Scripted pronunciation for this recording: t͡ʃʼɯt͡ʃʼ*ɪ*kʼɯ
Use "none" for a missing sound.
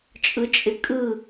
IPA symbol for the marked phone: ɪ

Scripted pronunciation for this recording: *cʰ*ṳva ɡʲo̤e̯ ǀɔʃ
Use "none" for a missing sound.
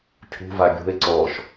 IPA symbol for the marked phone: cʰ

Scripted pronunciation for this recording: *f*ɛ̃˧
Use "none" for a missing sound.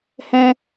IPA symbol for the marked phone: h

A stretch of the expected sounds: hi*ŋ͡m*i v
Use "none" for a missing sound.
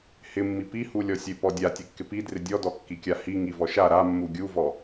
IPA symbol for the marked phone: ŋ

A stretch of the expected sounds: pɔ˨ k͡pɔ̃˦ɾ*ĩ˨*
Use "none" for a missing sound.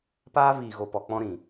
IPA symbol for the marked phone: ĩ˨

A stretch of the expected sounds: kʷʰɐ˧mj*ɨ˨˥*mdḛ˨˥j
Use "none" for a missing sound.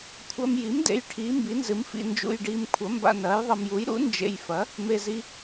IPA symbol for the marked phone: i˨˥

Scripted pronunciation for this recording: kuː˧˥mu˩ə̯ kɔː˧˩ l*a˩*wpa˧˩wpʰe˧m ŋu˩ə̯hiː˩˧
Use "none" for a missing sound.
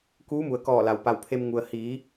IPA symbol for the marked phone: a˩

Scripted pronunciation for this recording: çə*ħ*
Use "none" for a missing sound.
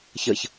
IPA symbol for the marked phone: ç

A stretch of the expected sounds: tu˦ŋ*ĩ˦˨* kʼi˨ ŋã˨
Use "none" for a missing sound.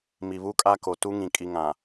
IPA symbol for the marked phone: ĩ˨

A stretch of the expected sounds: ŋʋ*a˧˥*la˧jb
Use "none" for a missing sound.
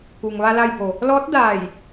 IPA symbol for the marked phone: a˧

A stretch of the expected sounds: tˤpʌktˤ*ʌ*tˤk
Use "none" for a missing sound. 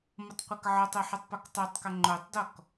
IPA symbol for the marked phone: ʌ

